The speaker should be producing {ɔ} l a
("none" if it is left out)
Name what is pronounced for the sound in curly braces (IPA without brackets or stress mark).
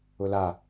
ʊ